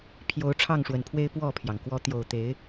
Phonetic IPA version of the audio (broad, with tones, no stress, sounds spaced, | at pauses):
pʰ j o˨˦ ʊ̯ ʈ͡ʂʰ ɑ˥˨ ŋ ʂ w ə˨˩ n pʰ w e˦ ɪ̯ p w ɔ˥˨ pʰ j ɑ˩ ŋ k w ɔ˨˦ t̪ j o˨˩ ʊ̯ t̪ e˨˦ ɪ̯